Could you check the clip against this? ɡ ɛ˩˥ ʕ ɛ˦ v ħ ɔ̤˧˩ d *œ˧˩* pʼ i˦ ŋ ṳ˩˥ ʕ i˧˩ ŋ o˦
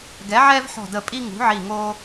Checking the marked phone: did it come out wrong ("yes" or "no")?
yes